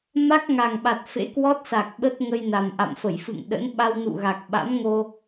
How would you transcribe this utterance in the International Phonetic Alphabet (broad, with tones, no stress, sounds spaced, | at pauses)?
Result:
m a˦˥ k̚ ŋ a˨˩ ŋ ɓ a˨˩ t̚ f ḛ˧˥ k w ɔ˦˥ t̚ s a˨˩ k̚ ɓ ə˦˥ t̚ ŋ ə˧ j n a˨˩ m ʔ a̰˧˨ m f ə˧˩ j f ɨ̰˧˨ ŋ ɗ ə̰˧˥ n ɓ a˧ w n ṵ˧˨ ɣ a˨˩ k̚ ɓ a̰˧˥ m ŋ o˧